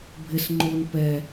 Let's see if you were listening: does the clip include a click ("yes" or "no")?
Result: yes